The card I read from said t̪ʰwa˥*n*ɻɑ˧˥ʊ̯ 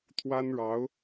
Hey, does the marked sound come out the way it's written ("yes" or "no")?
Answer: yes